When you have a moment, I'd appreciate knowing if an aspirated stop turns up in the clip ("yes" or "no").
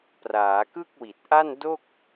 no